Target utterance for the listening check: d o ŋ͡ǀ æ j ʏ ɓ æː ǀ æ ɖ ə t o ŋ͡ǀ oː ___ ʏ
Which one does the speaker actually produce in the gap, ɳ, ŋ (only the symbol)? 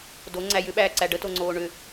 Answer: ɳ